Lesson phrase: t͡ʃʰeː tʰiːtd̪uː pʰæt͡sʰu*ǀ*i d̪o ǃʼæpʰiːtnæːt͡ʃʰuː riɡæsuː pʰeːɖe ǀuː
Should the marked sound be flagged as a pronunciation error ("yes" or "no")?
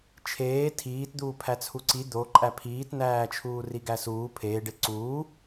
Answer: no